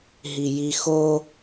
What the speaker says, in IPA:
ɦ i j i x o

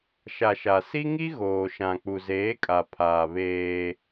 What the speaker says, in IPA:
ʃ a˨ ʃ a˨ s i˦ ŋ i˦ ɣ oː˨ ʃ ã˨ k͡p u˨ z eː˨˦ kʼ a˨ pʰ aː˨ β eː˦

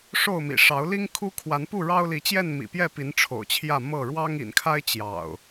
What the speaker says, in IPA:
ʂ o˥˨ ʊ̯ m ḭ˨˩ ʂ ɑ˨˦ ʊ̯ l i˦ ŋ kʰ u˦ kʰ w a˨˦ n p u˥˨ ɻ ɑ˦ ʊ̯ l i˨˦ t͡ɕ j ɛ˥˨ n m ḭ˨˩ p j ɛ˥˨ p i˨˦ n ʈ͡ʂʰ o̰˨˩ ʊ̯ t͡ɕʰ j ä˥˨ m ɤ˥˨ ɻ w ɑ˦ ŋ ḭ˨˩ n kʰ a˦ ɪ̯ t͡ɕ j ɑ̰˨˩ ʊ̯

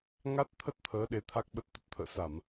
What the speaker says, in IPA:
ŋ a˦˥ t̚ t̪ʰ ə˦˥ t̚ t̪ʰ əː˨˦ ɗ e˨˦ t̪ʰ a˦˥ k̚ ɓ ə˦˥ t̚ t̪ ə˨˩ t̚ t̪ʰ ə̰ː˧˨ s a˧˩˨ m

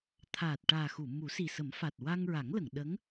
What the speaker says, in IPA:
t̪ʰ aː˨˩ t̚ ʈ aː˨˩ x u˨˩˨ m u˨˩˦ s i˨˩ s ə˨˩˦ m f a˨˩ t̚ w a˧ ŋ ɹ a˨˩˦ ŋ l ə˨˩˨ ŋ ɗ ə˧˥ ŋ

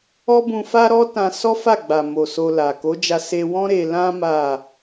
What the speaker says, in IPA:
ɔ˦ b ũ˧ f a˦ ɾ ɔ˦ t ã˧ s ɔ˦ f a˦˨ ɡ͡b a˨ m o˨ s o˧ l a˨ k o˨˦ d͡ʒ a˧ s e˧ w ɔ̃˦ ɾ e˧ l ã˦ m a˦˨

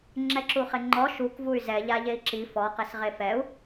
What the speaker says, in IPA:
ŋ͡ǁ ɛ ǁ u χ ɪ ŋ͡ǃ ɔ ʃ u k v u y̯ z ɛ ʎ a ʎ e i̯ ǁ i f ɔ q e s ʁ e f ɛ u̯

